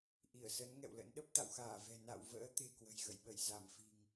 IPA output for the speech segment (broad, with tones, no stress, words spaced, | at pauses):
ʔi˧˩ə̯sə˨˦n ŋɛ̰˧˨wlə̰˧˥nɗə˦˥p̚ t̪a̰˧˨wxaː˧˩vɛ̤˨˩ na̰˧˨wvə̰ː˧˥ t̪e̤˨˩kwə̤˨˩jɣə̰˧˨jɓə˧˩j za˧˩mfi̤˨˩ŋ